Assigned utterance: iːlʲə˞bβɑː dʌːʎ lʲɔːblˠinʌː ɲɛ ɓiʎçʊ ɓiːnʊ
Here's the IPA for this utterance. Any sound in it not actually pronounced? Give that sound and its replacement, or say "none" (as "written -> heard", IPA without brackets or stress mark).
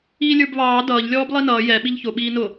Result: ɲ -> j